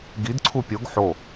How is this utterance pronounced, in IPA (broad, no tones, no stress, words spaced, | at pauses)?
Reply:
ɡid ǀʰupʲoɡ ħo